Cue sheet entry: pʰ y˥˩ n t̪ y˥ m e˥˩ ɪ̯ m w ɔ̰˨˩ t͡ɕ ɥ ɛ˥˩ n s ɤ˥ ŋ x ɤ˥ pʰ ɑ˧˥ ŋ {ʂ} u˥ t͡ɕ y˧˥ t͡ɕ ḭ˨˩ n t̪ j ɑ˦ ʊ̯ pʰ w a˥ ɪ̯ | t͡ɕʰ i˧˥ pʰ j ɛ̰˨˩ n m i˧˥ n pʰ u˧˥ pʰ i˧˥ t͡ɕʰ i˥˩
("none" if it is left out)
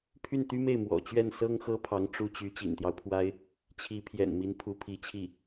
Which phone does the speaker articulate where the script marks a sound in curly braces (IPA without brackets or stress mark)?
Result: ʈ͡ʂ